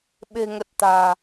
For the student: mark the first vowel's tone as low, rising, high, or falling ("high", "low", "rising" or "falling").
low